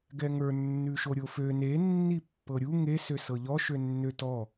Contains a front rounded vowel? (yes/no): yes